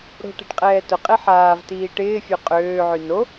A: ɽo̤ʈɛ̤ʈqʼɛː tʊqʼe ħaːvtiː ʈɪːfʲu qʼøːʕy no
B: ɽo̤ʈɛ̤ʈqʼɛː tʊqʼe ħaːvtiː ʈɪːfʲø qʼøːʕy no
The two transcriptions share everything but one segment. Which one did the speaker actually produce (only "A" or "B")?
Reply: B